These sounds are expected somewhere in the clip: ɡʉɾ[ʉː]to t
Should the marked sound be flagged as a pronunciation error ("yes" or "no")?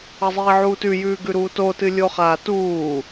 yes